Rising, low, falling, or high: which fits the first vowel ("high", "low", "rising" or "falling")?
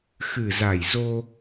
low